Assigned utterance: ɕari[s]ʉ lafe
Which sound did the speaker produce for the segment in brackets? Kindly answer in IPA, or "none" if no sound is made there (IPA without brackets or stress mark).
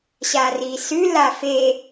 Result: s